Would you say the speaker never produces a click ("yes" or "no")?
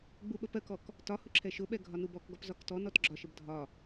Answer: no